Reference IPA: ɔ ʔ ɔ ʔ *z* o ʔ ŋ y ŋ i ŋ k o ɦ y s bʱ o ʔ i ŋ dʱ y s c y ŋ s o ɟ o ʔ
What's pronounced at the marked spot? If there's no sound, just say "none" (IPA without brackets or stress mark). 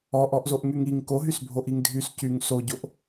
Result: z